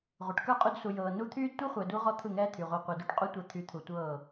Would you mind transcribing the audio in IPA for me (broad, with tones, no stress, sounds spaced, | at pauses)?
ʁʷ ɯ˨ ʈ k ə˞˦˨ qʼ u˧ d s u˨ j ɤː˨ n u˦ t̪ʰ yː˦ d tʷ ɯ˦ χʷ ɛ˨ d u˧ ʁ ɔ˦ t̪ʰ ɯ˦˨ ŋ ɛː˦ t̪ʰ y˨ ʁʷ ɛ˧ qʷ ɛ˨ d u˧ ʈ qʼ u˦ tʷ ɛ˧ t̪ʰ y˨ t̪ʰ u˨ tʷ ɤː˦˨